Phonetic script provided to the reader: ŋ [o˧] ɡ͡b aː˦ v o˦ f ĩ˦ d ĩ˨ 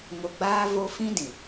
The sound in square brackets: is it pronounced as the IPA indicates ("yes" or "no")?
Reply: yes